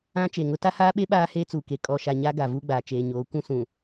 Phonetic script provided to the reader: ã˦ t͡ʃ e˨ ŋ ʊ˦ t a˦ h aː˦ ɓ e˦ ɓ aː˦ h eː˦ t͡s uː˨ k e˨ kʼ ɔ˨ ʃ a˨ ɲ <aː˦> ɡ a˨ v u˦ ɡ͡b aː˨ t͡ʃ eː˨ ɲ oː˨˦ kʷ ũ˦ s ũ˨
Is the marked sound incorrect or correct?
incorrect